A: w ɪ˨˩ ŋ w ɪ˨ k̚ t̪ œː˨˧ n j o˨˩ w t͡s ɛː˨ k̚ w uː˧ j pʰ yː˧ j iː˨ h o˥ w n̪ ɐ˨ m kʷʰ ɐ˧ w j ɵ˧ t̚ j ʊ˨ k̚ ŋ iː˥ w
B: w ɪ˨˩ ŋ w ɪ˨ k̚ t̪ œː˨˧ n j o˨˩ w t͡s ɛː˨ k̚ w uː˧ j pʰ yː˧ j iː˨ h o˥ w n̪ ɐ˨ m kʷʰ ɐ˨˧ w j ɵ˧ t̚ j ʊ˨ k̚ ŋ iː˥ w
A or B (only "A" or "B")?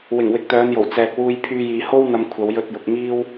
B